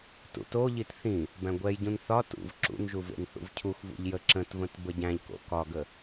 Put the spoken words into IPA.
tṵtoʎit θĩ | bæ̃ɡʷɛjɟũn θɒ tṵv ǁṵnʒuv ḛnθṵvcʰuxvṵʎ jə ǁə̃tvə̃t bəɟæ̃ʎko̰ kɒɡə

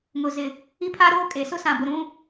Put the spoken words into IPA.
ŋʊ˨zɪ˨ | i˦pʰa˦ɾoː˦ kʼe˨ sʊ˦sã˨bʊ˨ ɾũ˦

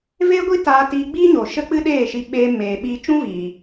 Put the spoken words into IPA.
veː˦ɡʷi˦taː˧tiː˧ ɡ͡biː˦ɲoː˨ ʃə˦k͡pɨ˦ɗeː˦˨ʃi˧ ɓeː˧meː˨ɓiː˧ t͡ʃũ˦viː˨

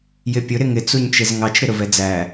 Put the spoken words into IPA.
jɪpʲʊ ɾɪŋɪ t͡suɲt͡ʃɪzŋɑt͡ʃ ɾɪɾʊvɛd͡zæ

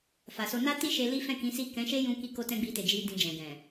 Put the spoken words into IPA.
fa˨so˧ na˦ti˦ʃe˧ li˦fɛ̃˦˨kĩ˨˦si˦˨ kɛ̃˨˦ʃe˦ jũ˦ ki˧ ko˦tɛ̃˦ɡ͡bi˧te˨ d͡ʒi˧ dĩ˧d͡ʒɛ̃˨ɡɛ̃˨

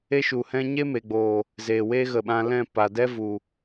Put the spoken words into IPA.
e˦ʃu˨hɛ̃˦ ɲe˦me˨ɡ͡boː˨ | zeː˨we˦ ɣə˨ɓã˧lɛ̃˦˨ pa˨dɛ˦ vu˨

